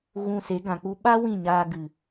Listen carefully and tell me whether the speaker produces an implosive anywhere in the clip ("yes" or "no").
yes